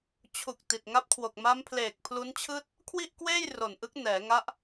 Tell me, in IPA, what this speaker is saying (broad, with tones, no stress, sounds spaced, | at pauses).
t͡ɕʰ u˨˩ k̚ t i˨˩ t̚ ŋ a˦˥ p̚ kʰ w o˨˩ k̚ m a˦˥ m pʰ l eː˨˩ k̚ pʰ l u˦˥ n t͡ɕʰ ɯː˥˩ t̚ | kʰ w i˥˩ ʔ k w eː˥˩ j r o˨˩ n ʔ ɯ˦˥ k̚ n ɛː˩˦ ŋ a˦˥ ʔ